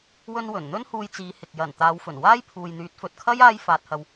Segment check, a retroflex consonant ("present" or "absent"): absent